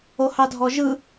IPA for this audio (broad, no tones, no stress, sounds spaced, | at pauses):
o h ɑ dʱ ɔ ʒ ɯ